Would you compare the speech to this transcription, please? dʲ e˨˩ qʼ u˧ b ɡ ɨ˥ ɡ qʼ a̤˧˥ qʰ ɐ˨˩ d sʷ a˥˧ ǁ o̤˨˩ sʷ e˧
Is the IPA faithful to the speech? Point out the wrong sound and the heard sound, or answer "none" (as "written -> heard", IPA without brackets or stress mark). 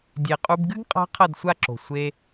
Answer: ɐ˨˩ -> ɐ˥˧